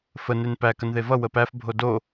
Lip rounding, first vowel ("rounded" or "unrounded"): unrounded